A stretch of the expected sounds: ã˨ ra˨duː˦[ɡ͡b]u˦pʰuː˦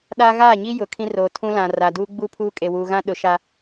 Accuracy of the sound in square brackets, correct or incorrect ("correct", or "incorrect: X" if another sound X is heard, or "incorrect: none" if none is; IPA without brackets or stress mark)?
correct